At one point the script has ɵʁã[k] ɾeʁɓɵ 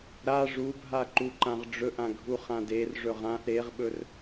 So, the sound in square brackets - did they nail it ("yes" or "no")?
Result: no